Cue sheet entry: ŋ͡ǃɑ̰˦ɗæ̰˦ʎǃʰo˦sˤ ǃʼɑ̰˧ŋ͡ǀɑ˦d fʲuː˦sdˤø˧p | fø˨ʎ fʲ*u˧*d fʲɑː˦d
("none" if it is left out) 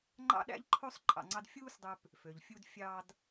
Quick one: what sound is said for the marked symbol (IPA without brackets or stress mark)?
u˧